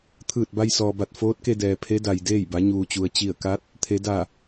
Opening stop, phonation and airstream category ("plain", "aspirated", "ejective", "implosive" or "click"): aspirated